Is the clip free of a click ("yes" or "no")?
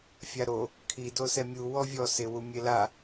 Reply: yes